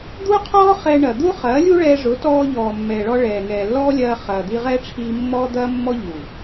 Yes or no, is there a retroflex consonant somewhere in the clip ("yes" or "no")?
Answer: yes